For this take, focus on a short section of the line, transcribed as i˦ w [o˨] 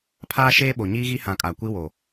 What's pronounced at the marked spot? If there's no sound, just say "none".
o˨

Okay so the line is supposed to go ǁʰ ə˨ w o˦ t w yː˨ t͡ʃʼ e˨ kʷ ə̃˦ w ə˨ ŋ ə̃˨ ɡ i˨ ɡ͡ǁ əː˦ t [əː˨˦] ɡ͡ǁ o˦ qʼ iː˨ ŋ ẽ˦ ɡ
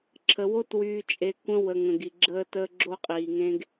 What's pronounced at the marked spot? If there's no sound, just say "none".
əː˦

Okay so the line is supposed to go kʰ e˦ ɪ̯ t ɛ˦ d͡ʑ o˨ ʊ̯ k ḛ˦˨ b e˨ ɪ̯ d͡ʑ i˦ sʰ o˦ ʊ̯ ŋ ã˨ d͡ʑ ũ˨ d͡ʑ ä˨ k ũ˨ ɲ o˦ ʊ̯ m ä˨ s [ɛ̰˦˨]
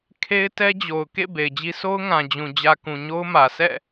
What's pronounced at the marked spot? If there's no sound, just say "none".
ɛ̰˦˨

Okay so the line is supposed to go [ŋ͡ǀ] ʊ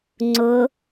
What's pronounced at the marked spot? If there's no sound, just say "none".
ŋ͡ǀ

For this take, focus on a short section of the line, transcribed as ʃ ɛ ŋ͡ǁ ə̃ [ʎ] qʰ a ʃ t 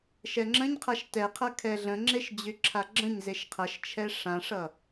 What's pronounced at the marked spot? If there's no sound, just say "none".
ɲ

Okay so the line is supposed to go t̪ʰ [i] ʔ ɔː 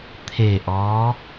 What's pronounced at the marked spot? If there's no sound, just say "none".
e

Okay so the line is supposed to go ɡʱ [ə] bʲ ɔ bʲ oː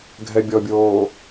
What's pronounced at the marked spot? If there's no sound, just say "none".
ɛ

